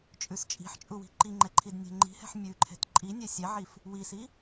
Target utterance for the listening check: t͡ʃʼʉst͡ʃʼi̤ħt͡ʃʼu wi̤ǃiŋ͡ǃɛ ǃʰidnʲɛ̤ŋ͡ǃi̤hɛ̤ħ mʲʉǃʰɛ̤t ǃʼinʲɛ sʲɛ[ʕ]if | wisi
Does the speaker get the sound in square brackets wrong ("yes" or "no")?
no